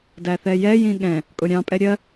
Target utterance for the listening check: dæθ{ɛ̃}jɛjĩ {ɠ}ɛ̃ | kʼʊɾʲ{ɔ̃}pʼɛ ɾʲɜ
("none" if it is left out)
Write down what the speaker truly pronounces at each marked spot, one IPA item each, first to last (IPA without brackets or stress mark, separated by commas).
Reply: ɛ, ɠ, ɑ̃